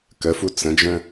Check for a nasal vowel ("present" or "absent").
present